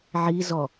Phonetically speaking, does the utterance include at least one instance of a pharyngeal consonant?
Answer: yes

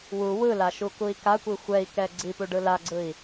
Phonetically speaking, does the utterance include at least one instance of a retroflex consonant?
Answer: yes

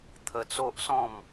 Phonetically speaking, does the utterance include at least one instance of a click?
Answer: no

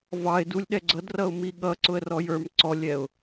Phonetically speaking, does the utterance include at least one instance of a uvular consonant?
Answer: no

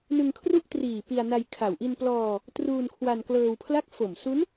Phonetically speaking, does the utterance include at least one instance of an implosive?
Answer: no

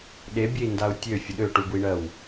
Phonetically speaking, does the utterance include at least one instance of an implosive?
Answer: yes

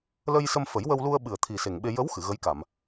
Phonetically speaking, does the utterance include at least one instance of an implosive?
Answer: yes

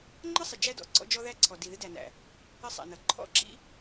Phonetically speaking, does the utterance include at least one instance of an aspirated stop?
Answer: yes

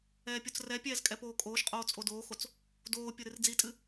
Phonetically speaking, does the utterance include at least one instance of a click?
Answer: no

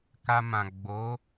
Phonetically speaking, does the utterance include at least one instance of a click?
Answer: no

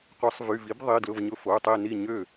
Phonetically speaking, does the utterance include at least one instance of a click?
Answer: no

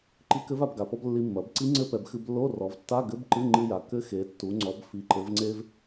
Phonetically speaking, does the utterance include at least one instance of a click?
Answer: yes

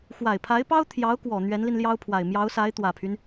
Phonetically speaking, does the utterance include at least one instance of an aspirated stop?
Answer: yes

